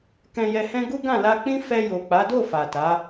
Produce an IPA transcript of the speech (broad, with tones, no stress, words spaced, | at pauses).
kɛ̃˧jɛ˧hɛ̃˦ ɡu˦ɡã˦˨la˧k͡pĩ˦ fɛ˧jo˨k͡pa˨˦do˦˨ fa˨ta˨˦